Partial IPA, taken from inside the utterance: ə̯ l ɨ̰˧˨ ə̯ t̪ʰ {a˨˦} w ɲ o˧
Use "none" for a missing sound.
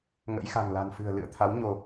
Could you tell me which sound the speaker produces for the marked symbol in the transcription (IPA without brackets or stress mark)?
a˨˦